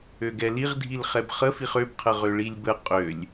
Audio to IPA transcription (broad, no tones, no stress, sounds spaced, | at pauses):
ø ɡ ɛ l i ʁ dʱ i l χ ɛ b χ ə f i χ ø b qʰ ə ʁ ø ɭ i lʲ b ə qʼ ø lʲ